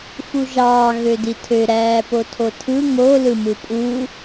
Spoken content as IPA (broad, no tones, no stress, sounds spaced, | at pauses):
f u ʒ ɑː ɣ ø d i tʰ ø ɾ æː p o tʰ o tʰ ɯ ŋ o l ɯ m ɯ pʼ uː